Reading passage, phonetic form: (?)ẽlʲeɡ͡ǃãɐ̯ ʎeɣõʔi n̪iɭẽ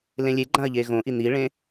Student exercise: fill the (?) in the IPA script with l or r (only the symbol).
l